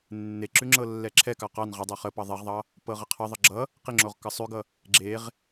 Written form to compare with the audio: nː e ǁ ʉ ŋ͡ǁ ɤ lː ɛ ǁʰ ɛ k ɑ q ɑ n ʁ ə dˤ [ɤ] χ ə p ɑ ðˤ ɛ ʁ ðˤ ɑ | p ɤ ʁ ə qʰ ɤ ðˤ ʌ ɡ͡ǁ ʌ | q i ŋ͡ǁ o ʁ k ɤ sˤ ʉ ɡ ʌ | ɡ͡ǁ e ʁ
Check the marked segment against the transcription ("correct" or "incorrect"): incorrect